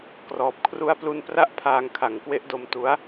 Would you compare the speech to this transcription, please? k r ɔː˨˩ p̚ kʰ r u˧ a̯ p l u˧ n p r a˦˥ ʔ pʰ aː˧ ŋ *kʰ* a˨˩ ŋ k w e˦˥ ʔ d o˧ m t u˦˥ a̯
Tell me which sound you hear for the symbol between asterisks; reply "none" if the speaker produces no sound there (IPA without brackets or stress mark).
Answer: kʰ